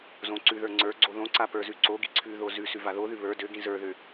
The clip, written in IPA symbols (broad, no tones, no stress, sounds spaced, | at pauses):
z õ ǀ ʉ ð ə˞ ŋ͡ǀ ə˞ ɡ͡ǀ o ð õ ǀ a p ə˞ z ʉ ǀ o ɡ i ǀʰ ʉ ð o z ʉ s ʉ v a ð o ð ʉ β ə˞ d ø ɡ ĩ z ə˞ ð ø